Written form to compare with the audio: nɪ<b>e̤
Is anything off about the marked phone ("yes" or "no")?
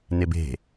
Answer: no